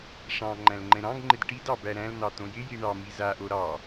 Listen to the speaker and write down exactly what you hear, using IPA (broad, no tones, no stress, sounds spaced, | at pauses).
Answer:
ʂ ɑ̃ ŋ͡ǃ æ̃ l ŋ͡ǃ ɛ̃ ɾ ɑ̃ ɡ ŋ͡ǃ ɪ d ʈ i d ɑ b æ ɾ æ̃ l n̪ ɑ t̪ õ j ɪ j i ɳ ɑ m i z a ʔ o ɾ ɑ